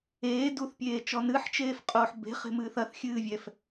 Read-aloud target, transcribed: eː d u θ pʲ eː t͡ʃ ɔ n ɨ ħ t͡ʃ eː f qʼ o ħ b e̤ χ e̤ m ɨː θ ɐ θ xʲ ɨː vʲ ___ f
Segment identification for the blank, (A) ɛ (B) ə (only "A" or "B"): A